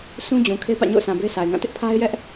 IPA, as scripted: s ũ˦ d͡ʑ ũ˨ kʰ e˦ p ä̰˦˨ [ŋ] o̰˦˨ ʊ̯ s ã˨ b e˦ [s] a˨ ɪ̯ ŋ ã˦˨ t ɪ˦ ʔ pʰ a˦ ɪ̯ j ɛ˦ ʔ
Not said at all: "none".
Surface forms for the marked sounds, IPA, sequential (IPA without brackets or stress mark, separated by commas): ɲ, s